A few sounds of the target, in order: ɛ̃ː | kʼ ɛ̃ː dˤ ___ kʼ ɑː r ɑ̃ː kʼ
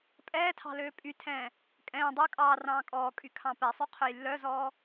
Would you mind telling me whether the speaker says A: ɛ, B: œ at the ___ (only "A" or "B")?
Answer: B